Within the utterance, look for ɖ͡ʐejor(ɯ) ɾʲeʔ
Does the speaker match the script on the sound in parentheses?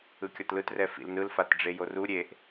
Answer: no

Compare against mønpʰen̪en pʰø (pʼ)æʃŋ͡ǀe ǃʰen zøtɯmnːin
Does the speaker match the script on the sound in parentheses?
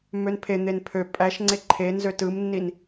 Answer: yes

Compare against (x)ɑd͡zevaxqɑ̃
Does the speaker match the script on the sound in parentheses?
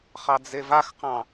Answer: no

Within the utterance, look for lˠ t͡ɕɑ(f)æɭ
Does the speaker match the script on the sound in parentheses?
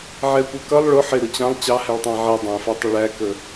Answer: no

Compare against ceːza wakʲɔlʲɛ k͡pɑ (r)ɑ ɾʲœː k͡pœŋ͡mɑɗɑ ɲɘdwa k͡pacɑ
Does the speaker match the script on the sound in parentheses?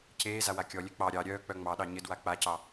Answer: no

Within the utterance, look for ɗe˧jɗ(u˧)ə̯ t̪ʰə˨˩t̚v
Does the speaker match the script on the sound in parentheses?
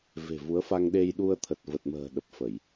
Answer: yes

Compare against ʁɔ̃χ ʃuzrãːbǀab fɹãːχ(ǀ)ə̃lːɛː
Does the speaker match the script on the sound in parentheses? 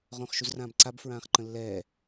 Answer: no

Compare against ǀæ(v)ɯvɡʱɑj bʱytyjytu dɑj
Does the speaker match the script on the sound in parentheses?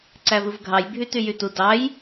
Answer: yes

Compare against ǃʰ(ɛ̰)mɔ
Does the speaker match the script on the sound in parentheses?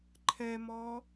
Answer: no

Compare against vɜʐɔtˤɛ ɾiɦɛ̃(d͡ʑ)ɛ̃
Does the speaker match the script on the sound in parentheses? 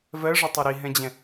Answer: yes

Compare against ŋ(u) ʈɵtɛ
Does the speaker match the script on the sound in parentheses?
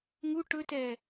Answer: yes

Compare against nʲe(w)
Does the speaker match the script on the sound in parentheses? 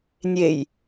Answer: no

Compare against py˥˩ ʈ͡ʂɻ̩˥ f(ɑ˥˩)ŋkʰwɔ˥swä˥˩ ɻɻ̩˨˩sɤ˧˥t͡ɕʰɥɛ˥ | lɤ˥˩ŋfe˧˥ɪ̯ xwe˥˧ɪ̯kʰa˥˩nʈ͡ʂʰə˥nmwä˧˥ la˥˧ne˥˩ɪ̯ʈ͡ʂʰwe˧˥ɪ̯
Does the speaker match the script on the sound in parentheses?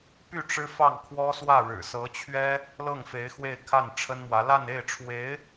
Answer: yes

